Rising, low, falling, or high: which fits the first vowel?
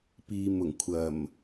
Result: low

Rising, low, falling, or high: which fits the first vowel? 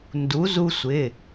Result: rising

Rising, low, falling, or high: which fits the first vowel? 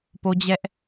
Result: high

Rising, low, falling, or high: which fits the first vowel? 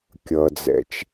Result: low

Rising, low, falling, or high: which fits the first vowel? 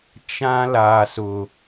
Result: high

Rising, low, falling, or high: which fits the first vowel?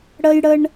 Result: high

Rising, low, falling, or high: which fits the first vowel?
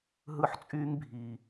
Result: high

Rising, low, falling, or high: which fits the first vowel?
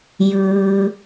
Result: low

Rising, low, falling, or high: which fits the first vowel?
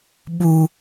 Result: low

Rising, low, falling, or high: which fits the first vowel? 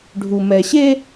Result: low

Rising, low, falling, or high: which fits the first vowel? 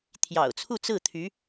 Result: low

